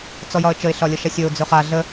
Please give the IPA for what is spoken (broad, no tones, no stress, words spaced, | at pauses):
t͡sɔjɒə̯t͡ʃəɪ̯ ɬɒlʲəʃæsʲɵʊ̯ d͡zɵχa ɮə